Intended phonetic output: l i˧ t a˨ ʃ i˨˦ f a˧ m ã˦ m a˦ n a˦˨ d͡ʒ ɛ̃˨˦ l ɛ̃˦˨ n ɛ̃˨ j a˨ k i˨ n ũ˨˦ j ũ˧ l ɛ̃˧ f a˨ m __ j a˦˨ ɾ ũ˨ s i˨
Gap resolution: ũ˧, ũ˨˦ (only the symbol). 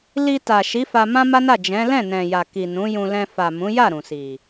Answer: ũ˨˦